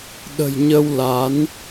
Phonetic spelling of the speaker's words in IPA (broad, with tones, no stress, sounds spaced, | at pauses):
ɗ ə̤˨˩ j ɲ ə˧ w l a˨˦ n